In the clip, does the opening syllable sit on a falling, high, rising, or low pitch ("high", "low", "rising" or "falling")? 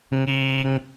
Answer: high